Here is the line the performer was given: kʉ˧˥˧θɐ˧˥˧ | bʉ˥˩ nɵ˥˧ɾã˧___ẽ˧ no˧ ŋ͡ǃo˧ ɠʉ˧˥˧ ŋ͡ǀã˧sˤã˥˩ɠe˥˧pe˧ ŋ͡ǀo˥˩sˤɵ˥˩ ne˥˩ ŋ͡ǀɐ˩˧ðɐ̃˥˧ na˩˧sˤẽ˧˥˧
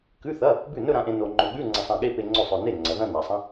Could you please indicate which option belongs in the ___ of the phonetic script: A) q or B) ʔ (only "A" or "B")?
B